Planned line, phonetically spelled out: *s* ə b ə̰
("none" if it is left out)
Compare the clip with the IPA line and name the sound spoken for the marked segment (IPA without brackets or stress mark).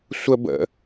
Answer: sʷ